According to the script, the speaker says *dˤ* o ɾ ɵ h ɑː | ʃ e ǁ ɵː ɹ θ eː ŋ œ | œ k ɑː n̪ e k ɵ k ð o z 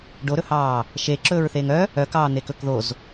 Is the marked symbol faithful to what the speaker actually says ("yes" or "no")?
no